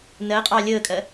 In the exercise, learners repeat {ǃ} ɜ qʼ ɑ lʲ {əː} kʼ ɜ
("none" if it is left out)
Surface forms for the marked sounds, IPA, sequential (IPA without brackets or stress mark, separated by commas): n, əː